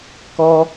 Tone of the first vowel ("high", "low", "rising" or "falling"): high